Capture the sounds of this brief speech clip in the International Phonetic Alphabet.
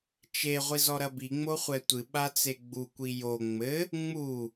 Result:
t͡ʃ e ʁʷ i z ɔ ɾ ɐ b i ŋ͡m o χʷ ɛ tʷ ɨ ɓ a t͡s e ɡ͡b u kʷ i j o ŋ͡m ɘ | ŋ͡m u

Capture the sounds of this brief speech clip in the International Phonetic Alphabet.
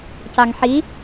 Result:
c ɑ ŋ ħ i

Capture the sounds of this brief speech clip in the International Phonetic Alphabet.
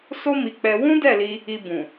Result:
s o˦ m i˧ k͡p ɛ˧ w ũ˦ d ɛ˦˨ l i˧ | i˧ b ũ˨

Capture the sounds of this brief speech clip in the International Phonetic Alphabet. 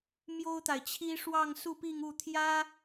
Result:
m j o˥ ʊ̯ t̪ a˨ ɪ̯ t͡ɕʰ i˥ ʂ w ɑ˥˧ ŋ s u˥˧ p i˥˧ ŋ u˥˩ t̪ʰ j ä˥

